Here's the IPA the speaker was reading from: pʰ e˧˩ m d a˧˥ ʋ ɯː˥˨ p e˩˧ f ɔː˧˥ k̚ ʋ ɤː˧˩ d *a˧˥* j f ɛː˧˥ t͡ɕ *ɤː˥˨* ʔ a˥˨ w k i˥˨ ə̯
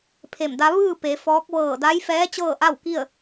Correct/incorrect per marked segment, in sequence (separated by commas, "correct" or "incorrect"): correct, correct